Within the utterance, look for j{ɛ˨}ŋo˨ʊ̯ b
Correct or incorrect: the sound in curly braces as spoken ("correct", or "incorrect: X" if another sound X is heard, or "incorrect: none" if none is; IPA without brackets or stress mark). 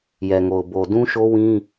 correct